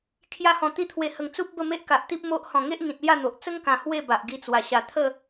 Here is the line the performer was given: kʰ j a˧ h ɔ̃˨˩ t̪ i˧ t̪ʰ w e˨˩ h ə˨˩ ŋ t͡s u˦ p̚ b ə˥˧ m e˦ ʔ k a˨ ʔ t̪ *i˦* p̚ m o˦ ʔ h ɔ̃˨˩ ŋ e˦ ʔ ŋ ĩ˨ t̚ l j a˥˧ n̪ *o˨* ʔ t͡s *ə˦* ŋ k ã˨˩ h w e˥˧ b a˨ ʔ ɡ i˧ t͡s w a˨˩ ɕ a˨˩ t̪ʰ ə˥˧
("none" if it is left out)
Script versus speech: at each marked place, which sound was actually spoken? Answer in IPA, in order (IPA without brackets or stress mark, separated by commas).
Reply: i˦, o˨, ə˦